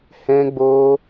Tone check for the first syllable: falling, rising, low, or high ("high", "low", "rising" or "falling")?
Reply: high